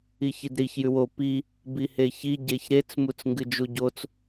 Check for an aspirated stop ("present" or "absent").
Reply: absent